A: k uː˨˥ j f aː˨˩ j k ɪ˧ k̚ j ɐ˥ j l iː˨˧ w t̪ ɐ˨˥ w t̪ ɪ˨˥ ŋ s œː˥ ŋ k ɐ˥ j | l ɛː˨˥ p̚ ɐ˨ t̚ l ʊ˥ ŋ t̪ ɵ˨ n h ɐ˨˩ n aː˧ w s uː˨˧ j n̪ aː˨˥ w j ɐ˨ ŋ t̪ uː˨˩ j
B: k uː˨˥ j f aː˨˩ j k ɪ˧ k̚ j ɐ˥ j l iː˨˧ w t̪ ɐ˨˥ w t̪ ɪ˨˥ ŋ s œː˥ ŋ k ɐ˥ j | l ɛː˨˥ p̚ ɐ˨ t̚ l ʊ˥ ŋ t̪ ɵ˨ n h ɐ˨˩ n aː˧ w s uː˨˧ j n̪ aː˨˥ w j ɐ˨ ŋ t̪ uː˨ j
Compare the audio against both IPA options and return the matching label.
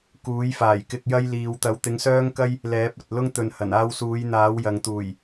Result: A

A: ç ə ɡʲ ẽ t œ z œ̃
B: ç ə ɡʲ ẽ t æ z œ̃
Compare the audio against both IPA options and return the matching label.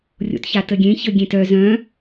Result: A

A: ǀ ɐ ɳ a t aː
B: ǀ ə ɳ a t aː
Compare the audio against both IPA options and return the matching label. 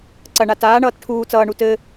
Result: A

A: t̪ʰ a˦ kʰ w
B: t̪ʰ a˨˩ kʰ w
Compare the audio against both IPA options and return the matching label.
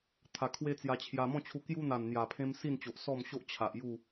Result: B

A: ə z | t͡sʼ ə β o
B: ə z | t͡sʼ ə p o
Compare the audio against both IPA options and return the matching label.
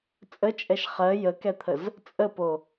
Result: B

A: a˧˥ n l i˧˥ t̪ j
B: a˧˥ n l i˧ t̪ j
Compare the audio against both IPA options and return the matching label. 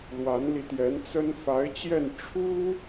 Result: B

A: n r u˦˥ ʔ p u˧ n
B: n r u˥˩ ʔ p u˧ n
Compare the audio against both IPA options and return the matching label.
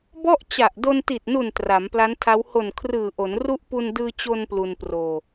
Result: A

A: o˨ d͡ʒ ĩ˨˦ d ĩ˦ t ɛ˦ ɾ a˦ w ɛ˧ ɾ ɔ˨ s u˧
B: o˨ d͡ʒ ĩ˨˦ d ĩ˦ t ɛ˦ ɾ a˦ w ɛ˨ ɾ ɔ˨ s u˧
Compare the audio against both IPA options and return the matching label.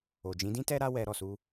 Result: A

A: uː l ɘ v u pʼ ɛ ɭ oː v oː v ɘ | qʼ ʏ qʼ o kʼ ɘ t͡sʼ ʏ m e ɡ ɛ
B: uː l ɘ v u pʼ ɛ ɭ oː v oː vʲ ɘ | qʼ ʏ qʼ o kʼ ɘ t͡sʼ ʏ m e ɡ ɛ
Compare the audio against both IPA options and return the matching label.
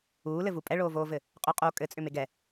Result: A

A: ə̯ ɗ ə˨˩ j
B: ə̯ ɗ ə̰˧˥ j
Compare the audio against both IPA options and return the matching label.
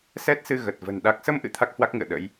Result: B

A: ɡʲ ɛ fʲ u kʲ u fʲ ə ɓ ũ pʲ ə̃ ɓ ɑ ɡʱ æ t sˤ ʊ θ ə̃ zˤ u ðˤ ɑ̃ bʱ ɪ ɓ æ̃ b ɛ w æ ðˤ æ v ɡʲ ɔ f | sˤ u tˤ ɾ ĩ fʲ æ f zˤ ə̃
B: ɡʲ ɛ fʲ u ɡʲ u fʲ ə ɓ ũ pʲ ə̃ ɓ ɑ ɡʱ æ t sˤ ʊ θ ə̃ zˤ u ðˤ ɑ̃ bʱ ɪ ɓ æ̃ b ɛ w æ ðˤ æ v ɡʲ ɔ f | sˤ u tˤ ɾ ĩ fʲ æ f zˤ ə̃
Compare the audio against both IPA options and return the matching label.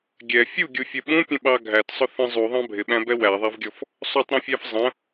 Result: B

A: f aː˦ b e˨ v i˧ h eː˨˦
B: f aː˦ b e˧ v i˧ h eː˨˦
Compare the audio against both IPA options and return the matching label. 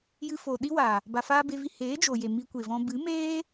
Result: B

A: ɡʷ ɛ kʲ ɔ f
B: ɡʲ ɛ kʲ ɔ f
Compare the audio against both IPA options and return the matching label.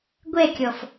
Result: A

